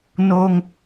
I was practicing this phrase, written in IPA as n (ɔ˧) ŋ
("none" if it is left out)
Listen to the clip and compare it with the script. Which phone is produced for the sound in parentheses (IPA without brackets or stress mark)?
o˧